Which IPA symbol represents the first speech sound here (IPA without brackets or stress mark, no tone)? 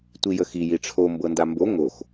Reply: tʷ